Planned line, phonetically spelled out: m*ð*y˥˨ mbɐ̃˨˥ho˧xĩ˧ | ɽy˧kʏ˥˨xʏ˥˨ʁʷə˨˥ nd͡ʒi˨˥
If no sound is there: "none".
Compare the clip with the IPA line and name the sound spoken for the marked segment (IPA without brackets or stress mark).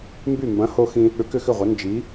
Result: b